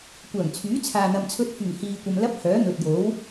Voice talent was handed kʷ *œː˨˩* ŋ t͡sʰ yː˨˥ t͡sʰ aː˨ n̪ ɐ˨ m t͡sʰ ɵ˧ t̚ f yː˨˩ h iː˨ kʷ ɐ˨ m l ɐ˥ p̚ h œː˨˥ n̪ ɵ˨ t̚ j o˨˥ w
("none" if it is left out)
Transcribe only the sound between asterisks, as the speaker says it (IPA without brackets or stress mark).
œː˨˩